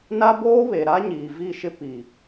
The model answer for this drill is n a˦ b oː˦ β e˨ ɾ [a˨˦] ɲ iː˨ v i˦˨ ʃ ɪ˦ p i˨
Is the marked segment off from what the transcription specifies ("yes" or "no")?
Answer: yes